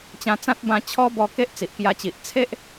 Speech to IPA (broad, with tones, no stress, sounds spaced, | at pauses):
t͡ɕ ã˧ t͡s ã˦ t̚ b ã˧ t͡ɕʰ ɔ˦ b ɔ˧ k e˦ ʔ t͡s i˨ ʔ k j a˧ t͡ɕ i˨ ʔ t͡sʰ e˦ ʔ